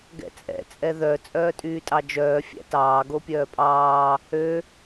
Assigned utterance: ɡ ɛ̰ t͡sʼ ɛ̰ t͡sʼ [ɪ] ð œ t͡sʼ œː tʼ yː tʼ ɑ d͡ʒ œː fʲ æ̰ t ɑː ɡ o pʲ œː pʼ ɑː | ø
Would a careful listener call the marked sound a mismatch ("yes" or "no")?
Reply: yes